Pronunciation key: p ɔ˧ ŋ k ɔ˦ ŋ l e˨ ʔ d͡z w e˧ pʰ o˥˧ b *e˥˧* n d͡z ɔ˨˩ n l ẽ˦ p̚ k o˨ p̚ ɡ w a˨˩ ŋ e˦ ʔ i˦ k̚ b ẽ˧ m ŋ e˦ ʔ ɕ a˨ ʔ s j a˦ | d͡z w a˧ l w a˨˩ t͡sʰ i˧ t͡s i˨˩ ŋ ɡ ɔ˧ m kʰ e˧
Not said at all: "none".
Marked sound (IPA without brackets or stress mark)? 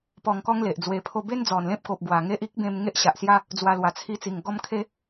e˦